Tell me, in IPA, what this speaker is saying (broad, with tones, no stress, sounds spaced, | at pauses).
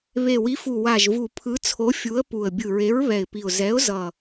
β e˨˩ w i˨˥ f u˨˩ w a˨˩ ʒ v u˨˩ pʰ ɯ˨˥ t͡sʰ o˨˥ fʲ u˨˥ ə̯ p u˨˩ ə̯ bʲ ɯ˨˩ ɹ e˨˥ ɹ β ɛ˨˩ ɪ̯ p i˨˩ ʊ̯ z ɛ˨˥ ʊ̯ z ʌ˨˩